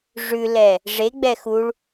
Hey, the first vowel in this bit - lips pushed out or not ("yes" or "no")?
yes